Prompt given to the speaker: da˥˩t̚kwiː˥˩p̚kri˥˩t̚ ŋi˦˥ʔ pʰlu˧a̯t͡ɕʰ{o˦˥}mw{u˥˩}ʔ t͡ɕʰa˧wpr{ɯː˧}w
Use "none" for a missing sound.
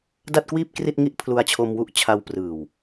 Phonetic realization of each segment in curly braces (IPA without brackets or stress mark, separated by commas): o˧, u˦˥, ɯː˨˩